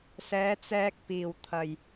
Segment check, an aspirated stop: present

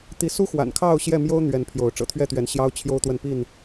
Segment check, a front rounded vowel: absent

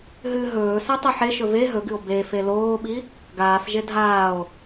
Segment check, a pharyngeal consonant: present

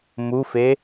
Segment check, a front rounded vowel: absent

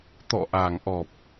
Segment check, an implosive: absent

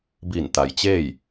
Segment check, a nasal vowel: absent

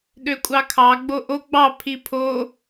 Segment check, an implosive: present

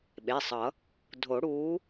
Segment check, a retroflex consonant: present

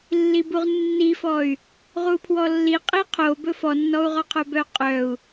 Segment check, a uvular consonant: present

